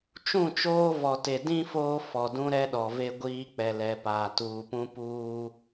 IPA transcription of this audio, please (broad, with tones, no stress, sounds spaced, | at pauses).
t͡ʃ ũ˦˨ t͡ʃ oː˦ v ɔ˨ t e˨ d ĩ˦ f oː˦ f ɔ˨ d ũ˦ ɾ ɛ˦ ɗ ɔ˨ v e˦ ɡʷ iː˦ k͡p ɛ˨ l ɛ˨ p aː˨ t uː˨ p ũ˦ p uː˦